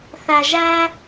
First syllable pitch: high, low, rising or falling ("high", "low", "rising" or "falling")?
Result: low